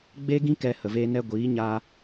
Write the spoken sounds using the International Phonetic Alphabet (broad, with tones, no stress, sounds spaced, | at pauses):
ɡ͡b e˦ ɡ ĩ˦ k ɛ˧ h ə˨ v eː˧ n ɛ˧ ɡʷ iː˨˦ ɲ a˧